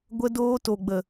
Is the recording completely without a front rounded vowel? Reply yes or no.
yes